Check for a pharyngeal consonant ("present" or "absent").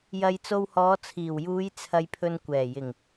absent